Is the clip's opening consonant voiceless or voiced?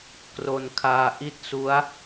voiceless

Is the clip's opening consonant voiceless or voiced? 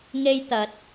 voiced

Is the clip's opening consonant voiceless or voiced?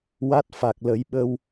voiced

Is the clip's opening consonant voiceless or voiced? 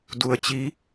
voiced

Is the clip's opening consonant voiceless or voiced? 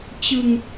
voiceless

